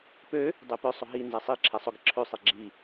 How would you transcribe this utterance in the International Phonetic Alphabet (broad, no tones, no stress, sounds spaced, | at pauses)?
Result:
p ø | dˤ e p œ sˤ ʊ ɦ i n z ɛ sˤ i ǁʰ ɛ sˤ ʊ ɡ ɪ ǁʰ ø sˤ i ɡ͡ǁ i